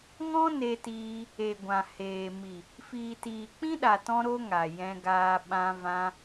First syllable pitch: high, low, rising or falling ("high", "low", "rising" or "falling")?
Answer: high